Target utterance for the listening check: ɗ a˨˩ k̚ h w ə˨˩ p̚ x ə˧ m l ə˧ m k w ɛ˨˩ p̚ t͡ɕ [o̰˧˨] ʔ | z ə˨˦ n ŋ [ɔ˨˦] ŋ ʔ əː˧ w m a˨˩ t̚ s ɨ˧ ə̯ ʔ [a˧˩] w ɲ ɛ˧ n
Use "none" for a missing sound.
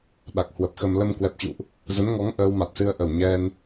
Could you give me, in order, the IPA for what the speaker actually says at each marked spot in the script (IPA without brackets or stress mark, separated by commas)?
ṵ˧˨, ɔ˨˦, ə˧˩